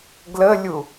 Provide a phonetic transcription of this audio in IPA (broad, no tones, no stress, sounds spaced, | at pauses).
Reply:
ɡ l ə lʲ u